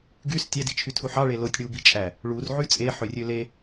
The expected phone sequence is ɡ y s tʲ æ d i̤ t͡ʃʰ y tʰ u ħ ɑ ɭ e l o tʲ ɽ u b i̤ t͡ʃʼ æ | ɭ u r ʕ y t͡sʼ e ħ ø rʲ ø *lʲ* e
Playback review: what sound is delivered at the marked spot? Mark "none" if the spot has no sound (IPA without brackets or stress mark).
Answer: l